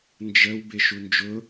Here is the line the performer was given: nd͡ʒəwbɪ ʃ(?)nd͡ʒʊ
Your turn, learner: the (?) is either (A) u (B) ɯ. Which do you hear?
A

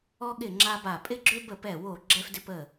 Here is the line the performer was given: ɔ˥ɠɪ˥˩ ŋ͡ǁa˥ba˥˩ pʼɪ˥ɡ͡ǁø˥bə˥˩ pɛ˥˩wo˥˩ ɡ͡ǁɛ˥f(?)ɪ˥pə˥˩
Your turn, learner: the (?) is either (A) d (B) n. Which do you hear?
A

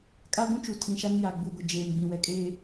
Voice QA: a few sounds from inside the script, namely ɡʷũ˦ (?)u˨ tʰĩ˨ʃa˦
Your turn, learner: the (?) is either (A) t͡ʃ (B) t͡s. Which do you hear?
A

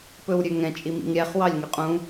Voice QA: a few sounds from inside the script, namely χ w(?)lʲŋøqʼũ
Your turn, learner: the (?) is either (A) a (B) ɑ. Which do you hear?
B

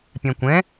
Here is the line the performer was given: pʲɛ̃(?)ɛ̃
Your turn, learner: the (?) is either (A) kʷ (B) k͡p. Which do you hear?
A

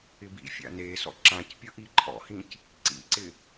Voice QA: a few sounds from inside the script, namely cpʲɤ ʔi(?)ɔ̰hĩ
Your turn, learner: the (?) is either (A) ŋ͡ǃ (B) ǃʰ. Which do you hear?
B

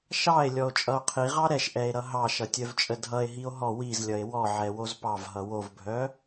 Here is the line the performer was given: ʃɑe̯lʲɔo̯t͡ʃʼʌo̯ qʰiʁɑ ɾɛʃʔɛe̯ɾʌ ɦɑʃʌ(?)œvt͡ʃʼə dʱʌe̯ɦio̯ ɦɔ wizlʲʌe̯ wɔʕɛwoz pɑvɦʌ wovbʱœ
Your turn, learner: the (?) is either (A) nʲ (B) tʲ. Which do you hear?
B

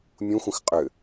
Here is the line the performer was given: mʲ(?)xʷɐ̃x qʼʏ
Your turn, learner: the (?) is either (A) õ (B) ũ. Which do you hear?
B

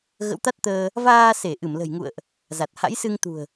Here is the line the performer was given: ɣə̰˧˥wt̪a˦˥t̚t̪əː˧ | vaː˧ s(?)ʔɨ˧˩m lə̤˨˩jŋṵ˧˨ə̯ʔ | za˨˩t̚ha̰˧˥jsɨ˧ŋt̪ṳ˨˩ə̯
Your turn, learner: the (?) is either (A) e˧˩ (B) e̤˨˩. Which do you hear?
A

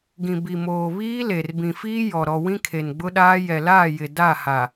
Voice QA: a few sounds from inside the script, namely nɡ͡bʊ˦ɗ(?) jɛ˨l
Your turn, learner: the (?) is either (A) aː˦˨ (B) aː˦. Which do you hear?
B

